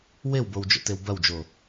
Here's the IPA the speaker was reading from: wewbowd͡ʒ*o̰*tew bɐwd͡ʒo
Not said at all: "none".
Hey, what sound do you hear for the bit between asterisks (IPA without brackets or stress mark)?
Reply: o̰